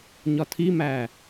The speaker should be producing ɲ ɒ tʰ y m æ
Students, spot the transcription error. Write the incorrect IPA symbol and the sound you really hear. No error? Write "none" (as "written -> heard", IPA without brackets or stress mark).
y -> i